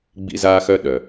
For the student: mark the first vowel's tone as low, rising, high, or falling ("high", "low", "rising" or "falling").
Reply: high